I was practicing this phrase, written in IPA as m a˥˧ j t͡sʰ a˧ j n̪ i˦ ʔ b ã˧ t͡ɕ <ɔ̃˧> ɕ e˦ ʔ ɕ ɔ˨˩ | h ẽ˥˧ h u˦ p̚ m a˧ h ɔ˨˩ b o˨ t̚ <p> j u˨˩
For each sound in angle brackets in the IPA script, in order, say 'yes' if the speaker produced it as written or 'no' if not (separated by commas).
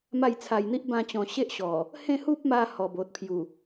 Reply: no, no